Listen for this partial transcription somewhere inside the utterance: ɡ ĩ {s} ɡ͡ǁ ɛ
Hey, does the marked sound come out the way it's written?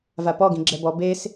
no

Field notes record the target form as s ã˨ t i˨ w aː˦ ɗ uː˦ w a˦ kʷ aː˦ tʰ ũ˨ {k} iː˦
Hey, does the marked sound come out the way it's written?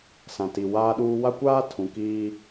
yes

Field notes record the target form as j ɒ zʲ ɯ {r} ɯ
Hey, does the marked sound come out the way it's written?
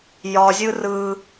yes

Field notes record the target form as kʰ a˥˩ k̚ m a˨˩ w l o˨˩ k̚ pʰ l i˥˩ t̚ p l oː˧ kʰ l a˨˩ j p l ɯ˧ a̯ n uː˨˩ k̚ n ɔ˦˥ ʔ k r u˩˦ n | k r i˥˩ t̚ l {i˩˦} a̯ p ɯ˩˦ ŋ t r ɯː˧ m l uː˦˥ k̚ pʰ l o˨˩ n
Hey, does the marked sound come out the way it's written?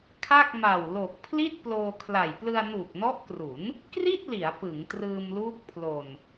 yes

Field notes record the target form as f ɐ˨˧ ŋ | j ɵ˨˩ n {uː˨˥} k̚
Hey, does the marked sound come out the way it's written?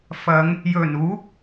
yes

